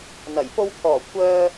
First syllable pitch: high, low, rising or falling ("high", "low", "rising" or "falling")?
low